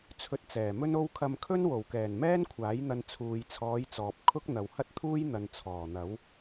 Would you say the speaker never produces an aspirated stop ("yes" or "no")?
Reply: no